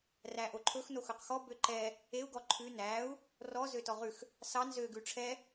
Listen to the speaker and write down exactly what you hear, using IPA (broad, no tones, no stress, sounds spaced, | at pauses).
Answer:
r æ ʔ o ǃʰ ɵ x n o x ɵ q x ɔ b ø ǃ ɛ | e u̯ ɡ ɔ ǃʰ ʉ n æ u̯ | r ɔ z ø t ɔ ʁ ʉ x | s ɑ n z ø ɡ ʉ ʈ͡ʂʰ ɛ